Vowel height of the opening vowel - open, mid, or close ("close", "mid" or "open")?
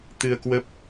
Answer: close